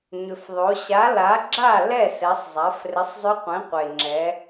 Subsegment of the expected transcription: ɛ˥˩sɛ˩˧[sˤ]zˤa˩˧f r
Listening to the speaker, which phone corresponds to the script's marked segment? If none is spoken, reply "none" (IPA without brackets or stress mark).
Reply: sˤ